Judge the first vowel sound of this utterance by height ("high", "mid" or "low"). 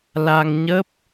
low